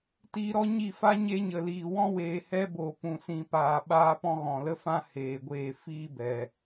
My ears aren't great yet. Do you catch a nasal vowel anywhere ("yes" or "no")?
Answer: yes